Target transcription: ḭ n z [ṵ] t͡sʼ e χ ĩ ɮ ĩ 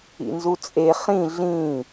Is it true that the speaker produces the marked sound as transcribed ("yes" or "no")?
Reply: no